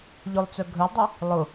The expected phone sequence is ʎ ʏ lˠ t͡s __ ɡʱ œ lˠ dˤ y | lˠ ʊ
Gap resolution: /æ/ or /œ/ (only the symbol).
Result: œ